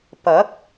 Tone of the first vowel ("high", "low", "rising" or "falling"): rising